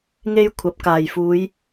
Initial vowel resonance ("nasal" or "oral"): oral